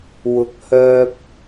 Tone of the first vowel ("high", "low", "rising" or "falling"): low